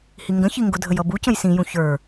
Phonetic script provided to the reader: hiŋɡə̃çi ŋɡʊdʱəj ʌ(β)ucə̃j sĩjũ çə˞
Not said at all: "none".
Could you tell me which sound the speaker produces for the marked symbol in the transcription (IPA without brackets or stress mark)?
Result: b